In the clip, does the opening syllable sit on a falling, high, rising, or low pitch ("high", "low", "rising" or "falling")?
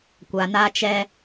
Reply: low